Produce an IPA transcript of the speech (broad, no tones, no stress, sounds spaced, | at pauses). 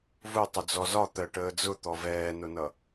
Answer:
v ʊ tˤ ʊ d͡z ɔ z ɒ t̪ ɜ ʈ əː d͡z ʊ t̪ ɔ v ɛː n ʊ n ʌ